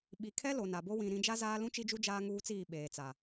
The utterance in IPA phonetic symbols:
ɓ i˨ kʰ ɛ˦ l o˨ n a˨ b o˦ w ĩ˨ ɾ ĩ˨˦ d͡ʒ a˦ z aː˦ l ũ˦ t͡ʃ i˦ d͡ʒ u˦ d͡ʒ aː˦ ŋ uː˦ t͡s iː˦˨ ɓ eː˨ t͡s a˨

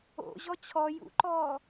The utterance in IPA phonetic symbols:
o̰ ʑ ɔ t͡ɕʰ ɔ j ṵ ǃ ɔː

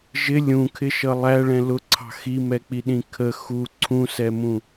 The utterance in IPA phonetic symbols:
ʒ ɪ lʲ ũ kʰ ɪ ʃ ʌ lˠ æ ɭ ɛ̃ l ʊ ǀʰ ɑ̤ x i m ɛ k͡p i ɗ ĩ kʰ ə x u ǀʰ ũ s ɛ m ũ

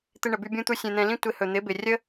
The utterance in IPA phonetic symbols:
t̪ ɪ˧ ɳ ə˩ b y˧ bʲ ũ˥ t̪ u˥ sʲ ẽ˧ n̪ ɛ̃˧ l ĩ˥ tʷ ɪ˩˥ h ɵ˩ n̪ ɪ˩˥ b ɪ˩ rʲ ə˥

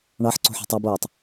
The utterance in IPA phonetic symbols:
ɳ ɑ ħ ǀ o̤ ħ o̤ tˤ ɑ b oː tˤ

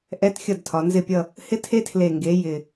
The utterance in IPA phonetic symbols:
ʔ ɛ˧˥˧ t xʲ ʌ˥˩ d tʰ ɒ˩˧ n z ɪ˥˩ pʲ ʌ˥˧ | h ɪ˦˥ tʰ e˦˥ tʰ l e˨˩ ŋ ɡ e˩˧ j ɪ˨˩

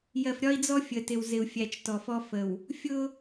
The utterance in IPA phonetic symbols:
j ɜ˨ f ɾʲ ɒ˦ i̯ d͡z ɔ˦ fʲ ə˨ t ɪ˨ w z ɪ˨ u̯ fʲ æ˨ t͡ʃ t ɔ˨ f ɔ˦ f ə˨ w | fʲ ʊ˦

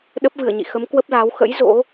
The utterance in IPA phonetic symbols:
ɗ ə˦˥ p̚ v ɨ˧˩ ə̯ ɲ ḭ˧˨ x ə˨˦ m k w ə˦˥ p̚ l aː˨˦ w x ə̰˧˥ j z o̰˧˥

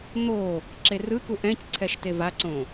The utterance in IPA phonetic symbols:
n̪ o | ǁ e r ɯ k u ʔ ɛ̃ c ǀʰ ɛ ʃ t e v a ǀ õ

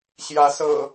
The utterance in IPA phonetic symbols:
ɕ j ä˨˦ s ɤ̰˨˩

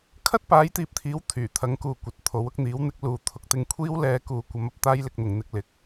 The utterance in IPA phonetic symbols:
kʰ ɐ˥ t̚ p aː˨˥ j t̪ iː˨ p̚ t̪ʰ iː˨˥ w t̪ʰ yː˨˩ t̪ʰ ɐ˨˥ ŋ k uː˨ kʷ ɐ˨ t̚ t̪ʰ o˨˥ w ʊ˧ k̚ n̪ iː˨˥ w n̪ ɪ˨˥ k̚ l uː˨ t̪ʰ ʊ˧ k̚ t̪ ɪ˧ ŋ kʷʰ iː˥ w l ɛː˧ k uː˨ kʷ ɐ˨˧ m ɐ˨ p̚ t̪ aː˥ j l ɪ˧ k̚ n̪ ʊ˨ ŋ n̪ ɪ˧ k̚ l ɪ˨ k̚

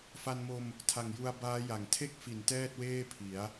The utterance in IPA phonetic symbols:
f a˧ n m o˧ m | tʰ a˨˩ ŋ j u˧ a̯ b aː˦˥ j a˩˦ ŋ tʰ e˥˩ k̚ f i˩˦ n t ɛː˥˩ t̚ w eː˥˩ pʰ i˩˦ a̯

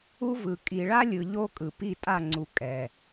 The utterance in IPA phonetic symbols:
u˦ v ɯ˨ kʼ i˨ ɭ a˦ lʲ ɯ˨ ʎ o˦ kʼ ɯ˨ p i˦˨ tʼ a˦˨ ŋ͡ǀ u˨ kʼ ɛ˨

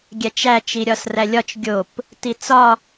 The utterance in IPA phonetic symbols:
ɡʲ æ t͡ʃ æ t͡ʃ i ɾʲ ɒ s r æ lʲ ɒ t͡ʃ ɡʲ o p | t i t͡s ɒ

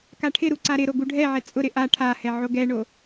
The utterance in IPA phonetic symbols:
k a ʈʰ ɪ ɾ u ǀ a ɾ ɪ ɾ o ɡ u ɖʱ ɛ ʕ ɛ t͡sʼ ʊ ɾ ɪ ʔ a ʈʰ a h ɛ ʕ o ɡ ɛ ɳ o

